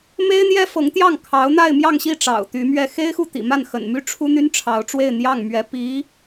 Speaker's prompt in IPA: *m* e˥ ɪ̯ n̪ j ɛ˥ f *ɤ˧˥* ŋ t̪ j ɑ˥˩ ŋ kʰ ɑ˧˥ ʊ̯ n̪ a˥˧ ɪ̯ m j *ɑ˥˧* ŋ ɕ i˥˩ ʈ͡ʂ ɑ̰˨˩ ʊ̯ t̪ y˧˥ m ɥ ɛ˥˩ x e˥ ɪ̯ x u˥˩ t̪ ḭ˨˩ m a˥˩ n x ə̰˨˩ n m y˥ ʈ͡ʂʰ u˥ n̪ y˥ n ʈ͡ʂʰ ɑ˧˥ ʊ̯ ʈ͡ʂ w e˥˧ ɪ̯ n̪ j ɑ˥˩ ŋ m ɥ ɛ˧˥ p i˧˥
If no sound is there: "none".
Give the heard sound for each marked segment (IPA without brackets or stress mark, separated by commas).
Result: m, ɤ˧˥, ɑ˥˧